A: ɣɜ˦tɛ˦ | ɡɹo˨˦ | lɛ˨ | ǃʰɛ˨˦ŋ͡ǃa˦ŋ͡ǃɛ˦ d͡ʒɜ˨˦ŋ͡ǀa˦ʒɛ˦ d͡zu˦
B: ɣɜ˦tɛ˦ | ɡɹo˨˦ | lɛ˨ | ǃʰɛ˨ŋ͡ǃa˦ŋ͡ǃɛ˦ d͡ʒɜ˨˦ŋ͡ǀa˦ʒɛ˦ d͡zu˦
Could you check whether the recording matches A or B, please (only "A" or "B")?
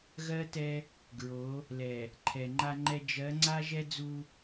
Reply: B